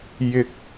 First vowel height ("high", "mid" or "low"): high